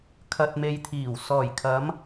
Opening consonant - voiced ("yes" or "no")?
no